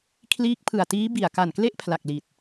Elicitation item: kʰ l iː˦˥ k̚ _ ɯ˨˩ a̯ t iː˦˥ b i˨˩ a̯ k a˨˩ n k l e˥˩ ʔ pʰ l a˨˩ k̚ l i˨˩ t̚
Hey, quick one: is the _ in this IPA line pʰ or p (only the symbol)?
pʰ